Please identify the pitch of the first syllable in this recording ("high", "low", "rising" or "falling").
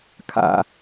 high